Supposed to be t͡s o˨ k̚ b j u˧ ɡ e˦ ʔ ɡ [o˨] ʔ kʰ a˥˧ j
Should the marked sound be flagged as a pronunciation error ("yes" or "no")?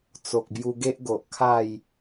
no